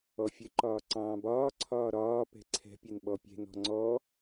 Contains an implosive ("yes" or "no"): yes